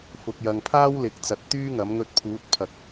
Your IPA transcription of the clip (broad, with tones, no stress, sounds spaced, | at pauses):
f ʊ˨ k̚ j ɐ˨ ŋ pʰ aː˥ w l ɪ˨˥ k̚ t͡s ɐ˨˥ t̚ t̪ yː˥ ŋ ɐ˨˥ m ŋ ɵ˧ t̚ pʰ uː˨˥ t̚ pʰ ɐ˨ k̚